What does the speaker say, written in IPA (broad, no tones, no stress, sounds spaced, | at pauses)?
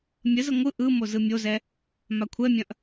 mʲ ə z ə ŋʷ ɯ ʔ ɯ m o z ɯ mʲ o z ɛ | m a kʷʰ ɛ mʲ ɐ̃ ʔ